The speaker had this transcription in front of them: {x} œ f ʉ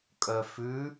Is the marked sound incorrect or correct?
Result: incorrect: kʼ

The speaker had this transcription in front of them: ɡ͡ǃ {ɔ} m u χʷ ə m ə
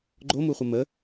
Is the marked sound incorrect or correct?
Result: incorrect: o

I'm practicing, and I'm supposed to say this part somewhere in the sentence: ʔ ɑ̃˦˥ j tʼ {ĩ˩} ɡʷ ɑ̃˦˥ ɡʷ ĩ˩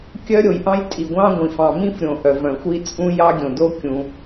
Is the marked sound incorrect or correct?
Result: incorrect: i˩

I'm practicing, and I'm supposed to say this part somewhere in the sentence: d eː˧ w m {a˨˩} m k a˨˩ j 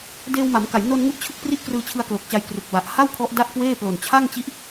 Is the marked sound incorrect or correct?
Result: incorrect: a˩˦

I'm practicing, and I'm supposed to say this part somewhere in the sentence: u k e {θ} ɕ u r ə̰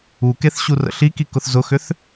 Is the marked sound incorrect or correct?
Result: correct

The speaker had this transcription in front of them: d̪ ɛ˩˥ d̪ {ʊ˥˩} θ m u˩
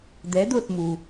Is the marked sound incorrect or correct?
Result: correct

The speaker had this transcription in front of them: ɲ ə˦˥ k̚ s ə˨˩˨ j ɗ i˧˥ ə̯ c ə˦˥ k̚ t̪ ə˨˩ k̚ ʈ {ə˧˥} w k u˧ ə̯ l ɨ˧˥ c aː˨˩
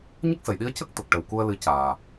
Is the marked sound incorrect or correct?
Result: incorrect: ə˨˩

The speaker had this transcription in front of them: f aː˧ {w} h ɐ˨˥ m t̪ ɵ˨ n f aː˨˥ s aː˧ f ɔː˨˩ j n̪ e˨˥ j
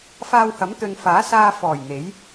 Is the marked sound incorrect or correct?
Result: correct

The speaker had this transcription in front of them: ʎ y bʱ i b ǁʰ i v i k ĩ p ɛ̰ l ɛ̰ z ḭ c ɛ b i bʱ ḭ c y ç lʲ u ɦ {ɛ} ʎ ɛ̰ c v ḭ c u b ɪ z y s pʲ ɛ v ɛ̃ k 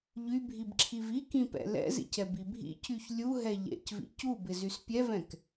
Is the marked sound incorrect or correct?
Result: correct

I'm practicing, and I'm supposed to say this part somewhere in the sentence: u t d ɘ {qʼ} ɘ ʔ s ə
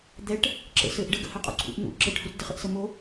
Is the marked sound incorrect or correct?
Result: incorrect: χ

